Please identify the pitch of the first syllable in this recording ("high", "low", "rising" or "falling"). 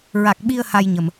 low